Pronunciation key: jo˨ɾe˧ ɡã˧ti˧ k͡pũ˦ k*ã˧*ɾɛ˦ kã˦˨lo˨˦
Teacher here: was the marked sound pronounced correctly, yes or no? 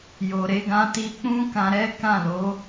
yes